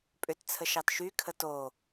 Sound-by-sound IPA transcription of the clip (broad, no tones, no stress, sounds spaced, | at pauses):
pʼ ʏ t t͡sʰ ə ʃ ɑ t ʃ y kʰ ə t o